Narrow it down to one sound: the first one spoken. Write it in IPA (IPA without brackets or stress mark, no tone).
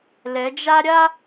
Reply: l